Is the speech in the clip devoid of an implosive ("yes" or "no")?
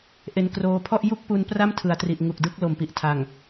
yes